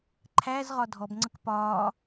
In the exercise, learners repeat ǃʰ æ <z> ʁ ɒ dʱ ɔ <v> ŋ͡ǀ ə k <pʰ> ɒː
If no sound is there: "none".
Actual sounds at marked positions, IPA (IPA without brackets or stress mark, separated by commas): z, b, p